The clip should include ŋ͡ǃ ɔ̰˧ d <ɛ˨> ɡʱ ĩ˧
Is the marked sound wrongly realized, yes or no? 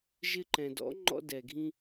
no